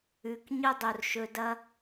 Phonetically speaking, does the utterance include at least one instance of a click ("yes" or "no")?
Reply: no